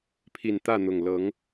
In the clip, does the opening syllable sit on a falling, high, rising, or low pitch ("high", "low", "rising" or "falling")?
low